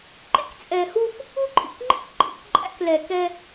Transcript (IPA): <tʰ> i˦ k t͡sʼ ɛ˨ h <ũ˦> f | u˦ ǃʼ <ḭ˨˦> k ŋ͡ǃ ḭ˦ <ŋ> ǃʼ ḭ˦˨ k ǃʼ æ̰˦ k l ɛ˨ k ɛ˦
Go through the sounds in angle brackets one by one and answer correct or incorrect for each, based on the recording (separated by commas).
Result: incorrect, incorrect, incorrect, incorrect